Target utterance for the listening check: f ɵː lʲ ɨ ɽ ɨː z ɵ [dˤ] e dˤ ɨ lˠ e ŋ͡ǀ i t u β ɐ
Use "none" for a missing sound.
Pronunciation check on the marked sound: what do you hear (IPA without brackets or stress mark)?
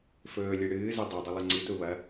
dˤ